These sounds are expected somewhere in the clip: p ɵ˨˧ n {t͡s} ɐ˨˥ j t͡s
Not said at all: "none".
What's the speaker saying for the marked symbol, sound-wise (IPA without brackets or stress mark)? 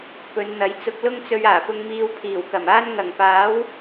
n̪